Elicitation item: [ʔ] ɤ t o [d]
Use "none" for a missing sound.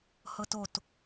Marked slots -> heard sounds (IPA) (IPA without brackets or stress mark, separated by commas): h, t